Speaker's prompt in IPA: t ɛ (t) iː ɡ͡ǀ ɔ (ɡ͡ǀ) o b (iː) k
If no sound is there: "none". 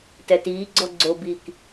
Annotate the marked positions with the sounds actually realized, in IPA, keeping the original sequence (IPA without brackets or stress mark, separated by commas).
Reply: t, ɡ͡ǀ, iː